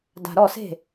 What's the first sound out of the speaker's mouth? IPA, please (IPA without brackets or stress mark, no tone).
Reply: d